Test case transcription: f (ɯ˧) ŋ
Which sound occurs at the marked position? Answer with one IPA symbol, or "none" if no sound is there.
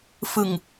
ɯ˧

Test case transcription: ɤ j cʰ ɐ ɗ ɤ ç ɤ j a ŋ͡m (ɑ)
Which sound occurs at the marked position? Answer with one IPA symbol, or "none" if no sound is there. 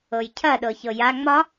ɒ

